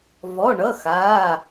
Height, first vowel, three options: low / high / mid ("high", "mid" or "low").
mid